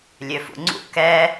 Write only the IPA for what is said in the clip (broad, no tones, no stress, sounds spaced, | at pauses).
lʲ ø f ṵ ŋ͡ǀ ṵ k ɛ